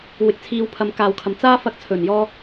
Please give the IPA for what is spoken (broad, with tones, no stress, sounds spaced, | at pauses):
w ɪ˨˥ k̚ t͡sʰ iː˨˧ w pʰ ɐ˨˧ m k aː˨ w kʰ ɐ˨ m t͡s aː˥ f ɐ˧ k̚ t͡sʰ ɵ˨˩ n j ɔː˧